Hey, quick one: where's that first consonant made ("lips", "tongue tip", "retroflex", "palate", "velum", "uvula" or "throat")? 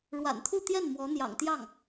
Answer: retroflex